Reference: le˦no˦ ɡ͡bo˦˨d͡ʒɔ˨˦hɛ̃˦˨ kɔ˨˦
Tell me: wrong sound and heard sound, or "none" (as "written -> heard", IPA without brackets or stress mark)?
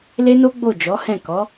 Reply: none